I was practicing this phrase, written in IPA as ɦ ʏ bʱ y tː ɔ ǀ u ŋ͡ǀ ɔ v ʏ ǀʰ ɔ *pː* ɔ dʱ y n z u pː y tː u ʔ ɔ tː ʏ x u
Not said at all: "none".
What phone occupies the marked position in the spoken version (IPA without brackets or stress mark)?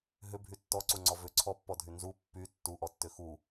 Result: pː